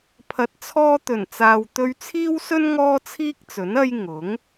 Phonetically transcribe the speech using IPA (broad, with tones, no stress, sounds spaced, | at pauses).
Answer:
pʰ ɐ˨ t̚ t͡sʰ ɔː˧ t̪ ɵ˨˩ n t͡s aː˨ w t̪ ɵ˧ ɥ t͡sʰ iː˥ w s ɵ˥ n ŋ ɔː˥ t͡sʰ iː˥ k̚ t͡s ɵ˨˥ n ɐ˧ j ŋ ʊ˨˥ ŋ